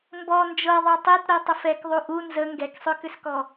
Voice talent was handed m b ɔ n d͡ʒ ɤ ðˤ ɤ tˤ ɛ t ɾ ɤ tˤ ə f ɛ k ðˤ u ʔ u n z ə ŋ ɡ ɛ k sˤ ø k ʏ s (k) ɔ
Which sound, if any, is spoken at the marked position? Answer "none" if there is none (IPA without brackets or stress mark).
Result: k